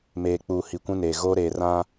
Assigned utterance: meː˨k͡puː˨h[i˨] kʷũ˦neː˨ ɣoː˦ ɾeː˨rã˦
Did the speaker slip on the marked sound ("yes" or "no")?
no